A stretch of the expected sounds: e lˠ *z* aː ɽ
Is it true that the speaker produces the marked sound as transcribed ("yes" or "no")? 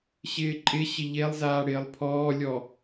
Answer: yes